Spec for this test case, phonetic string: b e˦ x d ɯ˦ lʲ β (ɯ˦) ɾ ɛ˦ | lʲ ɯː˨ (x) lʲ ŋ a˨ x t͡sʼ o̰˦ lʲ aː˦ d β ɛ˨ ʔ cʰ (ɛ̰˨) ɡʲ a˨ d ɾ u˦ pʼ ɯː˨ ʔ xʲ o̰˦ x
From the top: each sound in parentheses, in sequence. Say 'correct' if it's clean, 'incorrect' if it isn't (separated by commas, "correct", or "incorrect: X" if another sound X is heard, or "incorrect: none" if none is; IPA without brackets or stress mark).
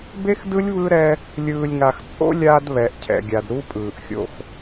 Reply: correct, incorrect: none, correct